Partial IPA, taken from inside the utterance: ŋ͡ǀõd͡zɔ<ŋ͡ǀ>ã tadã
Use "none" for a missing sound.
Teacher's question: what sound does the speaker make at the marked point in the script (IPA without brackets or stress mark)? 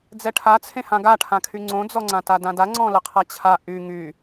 ŋ͡ǀ